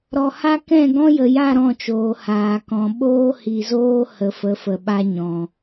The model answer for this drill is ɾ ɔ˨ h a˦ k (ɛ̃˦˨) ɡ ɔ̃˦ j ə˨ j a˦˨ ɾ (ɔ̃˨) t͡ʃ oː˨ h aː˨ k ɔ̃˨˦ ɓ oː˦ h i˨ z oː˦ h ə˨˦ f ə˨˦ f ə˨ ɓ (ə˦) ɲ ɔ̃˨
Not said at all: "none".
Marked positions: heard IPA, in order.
ɛ̃˦˨, ɔ̃˦˨, a˦

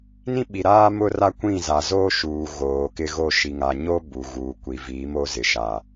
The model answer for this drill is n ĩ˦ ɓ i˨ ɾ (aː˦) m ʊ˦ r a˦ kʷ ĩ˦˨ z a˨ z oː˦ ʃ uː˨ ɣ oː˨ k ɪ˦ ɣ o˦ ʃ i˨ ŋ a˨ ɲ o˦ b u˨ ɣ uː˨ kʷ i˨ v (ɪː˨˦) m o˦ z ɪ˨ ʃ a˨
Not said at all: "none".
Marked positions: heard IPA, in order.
aː˦, iː˨˦

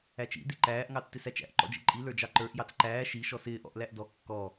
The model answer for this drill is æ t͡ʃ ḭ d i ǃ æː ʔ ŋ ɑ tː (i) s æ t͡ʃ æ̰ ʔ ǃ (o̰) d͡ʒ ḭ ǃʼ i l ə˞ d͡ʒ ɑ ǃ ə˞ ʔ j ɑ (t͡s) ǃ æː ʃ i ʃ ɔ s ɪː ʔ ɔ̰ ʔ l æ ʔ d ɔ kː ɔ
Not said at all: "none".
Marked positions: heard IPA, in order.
ɪ, ɔ̰, t͡s

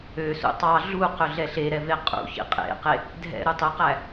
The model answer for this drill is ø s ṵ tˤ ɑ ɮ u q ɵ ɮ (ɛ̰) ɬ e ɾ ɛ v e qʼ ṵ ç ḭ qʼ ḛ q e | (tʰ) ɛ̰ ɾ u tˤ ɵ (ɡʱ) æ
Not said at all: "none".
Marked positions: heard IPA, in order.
ɛ, dʱ, q

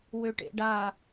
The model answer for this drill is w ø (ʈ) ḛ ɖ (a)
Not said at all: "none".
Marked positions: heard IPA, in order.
ʈ, a

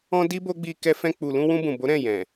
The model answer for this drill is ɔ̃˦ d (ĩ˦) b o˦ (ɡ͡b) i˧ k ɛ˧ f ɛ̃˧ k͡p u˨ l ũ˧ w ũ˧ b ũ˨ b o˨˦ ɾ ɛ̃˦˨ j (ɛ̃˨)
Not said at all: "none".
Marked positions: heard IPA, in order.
i˦, ɡ͡b, ɛ̃˨

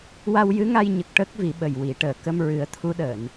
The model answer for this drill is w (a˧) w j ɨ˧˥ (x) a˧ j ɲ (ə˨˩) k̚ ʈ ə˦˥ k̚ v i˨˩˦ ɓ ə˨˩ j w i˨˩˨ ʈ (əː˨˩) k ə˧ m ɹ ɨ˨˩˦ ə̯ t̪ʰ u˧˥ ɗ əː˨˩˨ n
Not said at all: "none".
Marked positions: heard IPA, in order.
a˧, ŋ, ə˨˩, əː˨˩

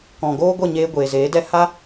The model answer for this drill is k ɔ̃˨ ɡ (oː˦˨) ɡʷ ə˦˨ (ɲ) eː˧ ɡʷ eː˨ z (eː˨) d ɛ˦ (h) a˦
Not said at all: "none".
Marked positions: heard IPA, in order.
oː˦, ɲ, eː˨˦, h

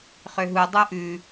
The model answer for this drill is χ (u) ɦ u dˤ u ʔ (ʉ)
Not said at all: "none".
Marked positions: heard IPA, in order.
ø, ʉ

